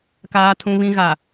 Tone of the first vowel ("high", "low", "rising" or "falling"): low